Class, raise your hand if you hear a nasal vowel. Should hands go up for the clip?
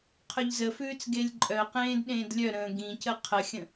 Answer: yes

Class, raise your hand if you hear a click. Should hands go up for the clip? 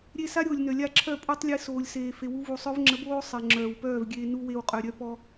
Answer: yes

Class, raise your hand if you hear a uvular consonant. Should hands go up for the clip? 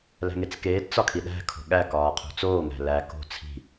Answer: yes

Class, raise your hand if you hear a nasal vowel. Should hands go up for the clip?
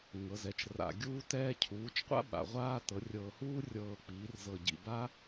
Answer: no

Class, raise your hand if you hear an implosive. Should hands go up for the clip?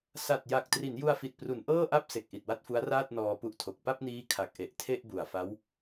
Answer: no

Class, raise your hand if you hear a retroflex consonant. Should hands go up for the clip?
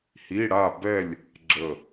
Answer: yes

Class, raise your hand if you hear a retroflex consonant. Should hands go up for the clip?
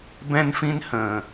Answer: no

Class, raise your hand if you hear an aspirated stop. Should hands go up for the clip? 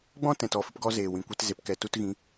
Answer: no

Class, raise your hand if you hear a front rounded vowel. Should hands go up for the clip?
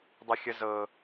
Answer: no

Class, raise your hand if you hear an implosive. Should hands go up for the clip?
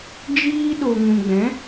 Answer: yes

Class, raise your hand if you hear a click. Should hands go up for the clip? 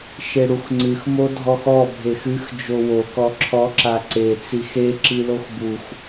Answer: yes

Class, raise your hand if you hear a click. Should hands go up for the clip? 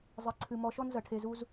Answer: yes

